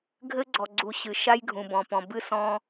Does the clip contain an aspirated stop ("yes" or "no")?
no